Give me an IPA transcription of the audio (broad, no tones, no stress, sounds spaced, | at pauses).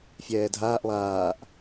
fʲ ɛː dʱ aː ʔ lˠ aː ʔ